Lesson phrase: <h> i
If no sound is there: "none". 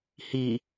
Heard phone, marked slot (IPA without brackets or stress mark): h